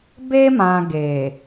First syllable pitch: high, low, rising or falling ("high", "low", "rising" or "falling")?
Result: high